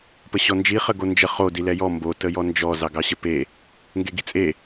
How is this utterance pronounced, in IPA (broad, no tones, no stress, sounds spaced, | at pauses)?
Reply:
p ə ɕ ɔ n d͡ʒ i χ ə ɡ o n d͡ʒ ə χ o d i l ɛ j ɔ m b o t ə j ɔ n d͡ʒ ɔ z ɑ ɡ ɑ ɕ ə p e | ŋ ɡ e ɡ i t͡sʼ e